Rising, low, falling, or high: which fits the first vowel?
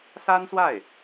high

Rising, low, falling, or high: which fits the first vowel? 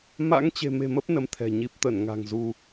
rising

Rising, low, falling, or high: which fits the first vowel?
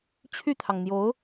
falling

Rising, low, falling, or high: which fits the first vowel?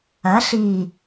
rising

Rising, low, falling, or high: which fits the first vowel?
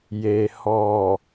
low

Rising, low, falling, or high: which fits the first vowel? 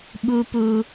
high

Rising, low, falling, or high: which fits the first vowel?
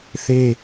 high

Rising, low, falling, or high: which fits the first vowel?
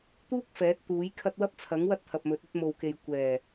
high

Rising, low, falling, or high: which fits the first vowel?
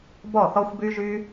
falling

